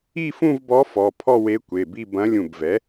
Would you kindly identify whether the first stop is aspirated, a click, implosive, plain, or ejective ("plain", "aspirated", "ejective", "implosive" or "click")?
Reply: plain